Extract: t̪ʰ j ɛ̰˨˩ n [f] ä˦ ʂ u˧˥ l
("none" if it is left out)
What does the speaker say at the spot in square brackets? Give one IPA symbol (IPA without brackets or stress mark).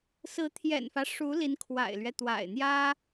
f